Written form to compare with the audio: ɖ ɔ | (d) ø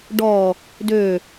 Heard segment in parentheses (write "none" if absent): d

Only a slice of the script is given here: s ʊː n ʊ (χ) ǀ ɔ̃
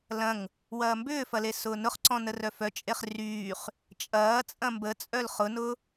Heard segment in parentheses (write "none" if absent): χ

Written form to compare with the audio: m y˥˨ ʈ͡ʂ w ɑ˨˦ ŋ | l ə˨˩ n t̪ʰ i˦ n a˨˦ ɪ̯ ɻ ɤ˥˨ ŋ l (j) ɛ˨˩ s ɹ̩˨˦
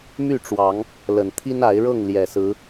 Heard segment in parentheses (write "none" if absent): j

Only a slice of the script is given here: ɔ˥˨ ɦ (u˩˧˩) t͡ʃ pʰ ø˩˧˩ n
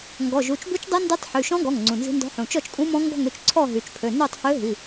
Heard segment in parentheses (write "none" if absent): y˩˧˩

